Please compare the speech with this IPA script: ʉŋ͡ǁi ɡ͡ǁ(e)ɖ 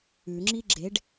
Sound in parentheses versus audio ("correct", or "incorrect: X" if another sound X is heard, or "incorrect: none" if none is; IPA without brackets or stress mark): correct